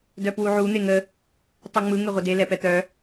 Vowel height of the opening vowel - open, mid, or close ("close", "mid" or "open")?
mid